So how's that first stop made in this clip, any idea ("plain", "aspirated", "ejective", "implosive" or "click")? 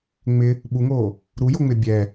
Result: implosive